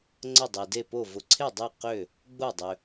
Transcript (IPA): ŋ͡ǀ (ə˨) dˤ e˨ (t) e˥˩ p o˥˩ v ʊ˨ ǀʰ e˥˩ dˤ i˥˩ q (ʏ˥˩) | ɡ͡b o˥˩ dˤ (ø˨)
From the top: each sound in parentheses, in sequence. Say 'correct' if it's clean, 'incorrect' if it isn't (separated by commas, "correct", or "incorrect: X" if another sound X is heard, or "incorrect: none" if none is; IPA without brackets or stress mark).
incorrect: ə˥˩, incorrect: d, correct, correct